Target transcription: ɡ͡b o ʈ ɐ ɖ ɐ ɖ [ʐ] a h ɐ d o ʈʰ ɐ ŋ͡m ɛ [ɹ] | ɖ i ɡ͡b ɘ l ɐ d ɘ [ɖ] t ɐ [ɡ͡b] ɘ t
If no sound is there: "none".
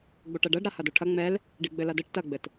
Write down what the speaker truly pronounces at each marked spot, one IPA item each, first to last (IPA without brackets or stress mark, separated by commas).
ɾ, l, ʈ, ɡ͡b